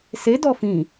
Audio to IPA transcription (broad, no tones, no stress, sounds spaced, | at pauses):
s e d ɔ f ĩ